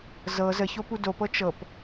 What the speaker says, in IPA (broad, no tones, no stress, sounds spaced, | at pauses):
z ɤ z ə ç o p u d o p ɤ t͡ʃ ɤ p